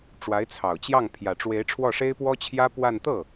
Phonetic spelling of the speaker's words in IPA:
ʈ͡ʂwa˧˥ɪ̯t͡sʰɑ˨˩ʊ̯t͡ɕjɑ˥˩ŋ pʰjä˨˩ʈ͡ʂwe˧˥ɪ̯ ʈ͡ʂʰwɔ˥˩ʂe˥ɪ̯ pwɔ˥t͡ɕʰjä˥ pwa˥˧n t̪ɤ˥˩

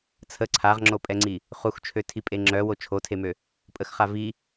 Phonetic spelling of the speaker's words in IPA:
t͡sʰə ǀʰaʁŋ͡ǁopʼɛŋ͡ǀi | χuxt͡ʃʰøtʰipʼe ŋ͡ǁœwo t͡ʃʰotʰemø | pʼəxχa vi

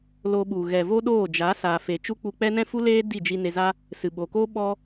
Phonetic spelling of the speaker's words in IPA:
loː˧ɓu˨ ɣɛ˨voː˦ɗoː˦˨ d͡ʒa˨˦saː˨fe˨ t͡ʃu˦k͡pu˧k͡pɛ˦ nɛ̃˦fu˦leː˦ di˦˨d͡ʒi˧ne˧ za˦ | sɨ˨ɓo˨koː˦ ɓɔ˧

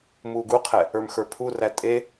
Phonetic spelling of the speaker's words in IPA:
muːɡuqʰɛ | ə˞mxə˞pʰuræ tʼe

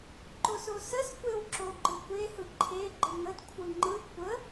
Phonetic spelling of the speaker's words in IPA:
ǃososəs kʷewǁoɡ͡ǃɯkʷe hɯǃʰe ɡ͡ǃɯŋəd kʷʰɯŋ͡ǃɯ kʷə

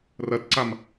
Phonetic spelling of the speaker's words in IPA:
rɐtǀam

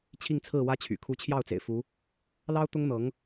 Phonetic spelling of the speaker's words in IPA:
t͡ɕʰi˥˧ŋt͡sʰɹ̩˥˩ wä˥t͡ɕʰy̰˨˩ kʰu˧˥t͡ɕʰjɑ˥˩ʊ̯t͡sḛ˨˩ɪ̯ fu˧˥ | lɑ˥ʊ̯ t̪ʊ˥ŋn̪ɤ˧˥ŋ

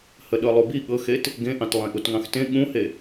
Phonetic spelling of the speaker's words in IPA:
həɗɤlˠubi ɠɤxet | ɡẽʔɑ̃t lˠẽʔutŋɑ̃xtẽ ɠũhe

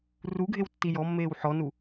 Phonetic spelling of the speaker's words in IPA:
ruɡʱewtːi jɔmːeːw ħɔnu

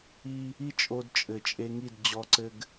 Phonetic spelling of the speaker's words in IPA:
i˦ | i˦t͡ʃʼo˧dt͡ʃʼɘ˨ t͡ʃʼe˧ŋi˦˨d d͡ʑɔ˧ǀɘ˧ɡ

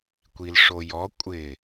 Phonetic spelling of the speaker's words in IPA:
kʷilʂojɔ kʷʼɪ

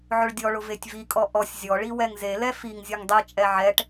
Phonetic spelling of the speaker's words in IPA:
ʕʊɭdʲɔɭʊ vetʲvikʼɔ ʔɔsʲ zʲɔɭi wɛŋzelɛ fiŋ zʲɔŋdˤit͡ʃʼɛ ʕɛʈ

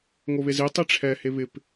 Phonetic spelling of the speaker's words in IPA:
ŋoβezi tˤiʈ͡ʂʰɛ heβɪp

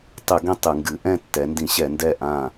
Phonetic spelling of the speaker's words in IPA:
tˤɨ˧˩˧ɡẽ˥˨ tˤɨ˧˩˧ŋɡɨ˩˧ ʔɛ̃˥˨tːɛ˩˧ndĩ˧˩˧ɕɛ˧˩˧ ndɛ˥˨ ʔã˥˨

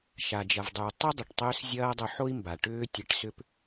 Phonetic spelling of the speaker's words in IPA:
ʃa˩d͡ʒɐ˩vdˤy˩u̯ tˤʏ˥dˤʏ˩ʈ tˤʏː˥s zʲɐː˥ dˤo˧ħo˥i̯mba˩ ʈʏː˥tʲe˧ʈsʏ˥p

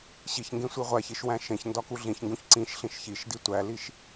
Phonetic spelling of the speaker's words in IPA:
ɕiç ŋɡẽsʷiʁʷæçiʃ wæ̃ʃẽçndɒ kuɮĩçŋɡũç ǀĩʃɬĩʃ çiʃdi tʷæliʃ

